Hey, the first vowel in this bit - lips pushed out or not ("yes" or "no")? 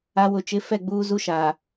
no